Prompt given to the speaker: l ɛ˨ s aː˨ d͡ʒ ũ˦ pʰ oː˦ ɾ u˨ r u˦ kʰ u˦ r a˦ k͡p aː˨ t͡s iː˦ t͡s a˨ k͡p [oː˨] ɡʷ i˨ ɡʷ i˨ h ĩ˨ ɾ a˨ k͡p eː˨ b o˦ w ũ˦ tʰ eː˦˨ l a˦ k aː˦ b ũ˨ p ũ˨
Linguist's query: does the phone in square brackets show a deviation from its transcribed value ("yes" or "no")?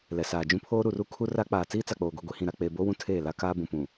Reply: no